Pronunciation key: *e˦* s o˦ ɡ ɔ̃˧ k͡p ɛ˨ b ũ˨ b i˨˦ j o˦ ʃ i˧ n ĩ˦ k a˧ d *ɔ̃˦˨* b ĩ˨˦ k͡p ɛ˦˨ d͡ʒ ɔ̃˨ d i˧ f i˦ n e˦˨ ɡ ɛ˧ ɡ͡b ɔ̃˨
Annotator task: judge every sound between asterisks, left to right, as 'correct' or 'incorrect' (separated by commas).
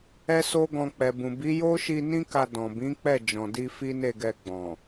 incorrect, incorrect